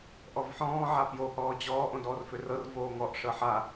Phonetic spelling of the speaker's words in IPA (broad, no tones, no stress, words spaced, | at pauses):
ʔɔvħɔ̃ː ʕapjo hɔːd͡ʑɔː ʔõdɔːrførɤr voːŋɔʔ ʂɤħa